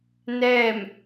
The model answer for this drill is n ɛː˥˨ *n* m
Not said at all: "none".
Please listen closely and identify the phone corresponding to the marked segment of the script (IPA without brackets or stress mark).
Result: none